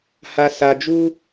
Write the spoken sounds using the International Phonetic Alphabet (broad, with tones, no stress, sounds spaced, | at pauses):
h a˧ s a˧ d͡ʒ u˦